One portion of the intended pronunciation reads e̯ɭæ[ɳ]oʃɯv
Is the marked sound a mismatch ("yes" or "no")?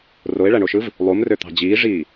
no